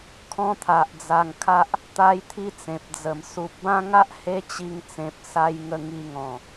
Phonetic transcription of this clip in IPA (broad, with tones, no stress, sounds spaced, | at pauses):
kʰ ɔ̃˦ t̪ʰ a˨ ʔ d͡z a˧ ŋ kʰ a˦ ʔ | t̪ a˦ j t̪ʰ i˦ t͡s ẽ˨ p̚ d͡z ə˨˩ m s u˨ p̚ b ã˦ ŋ a˦ ʔ h e˦ t͡ɕ i˧ ŋ t͡s ẽ˨ p̚ s a˧ j ŋ ə˧ ŋ i˧ ŋ ɔ̃˨˩